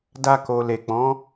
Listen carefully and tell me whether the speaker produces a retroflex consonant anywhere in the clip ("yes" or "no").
no